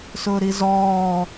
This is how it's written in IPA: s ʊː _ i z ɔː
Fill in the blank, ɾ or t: ɾ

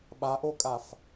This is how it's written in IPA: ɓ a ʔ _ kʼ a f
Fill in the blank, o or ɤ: o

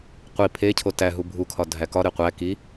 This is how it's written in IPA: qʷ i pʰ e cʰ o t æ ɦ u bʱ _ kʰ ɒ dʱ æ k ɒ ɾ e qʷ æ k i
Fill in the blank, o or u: u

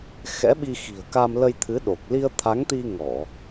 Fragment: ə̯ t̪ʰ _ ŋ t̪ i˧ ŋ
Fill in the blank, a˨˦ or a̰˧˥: a˨˦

